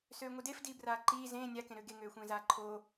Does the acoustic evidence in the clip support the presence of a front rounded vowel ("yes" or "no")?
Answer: yes